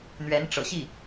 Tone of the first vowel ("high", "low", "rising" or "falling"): rising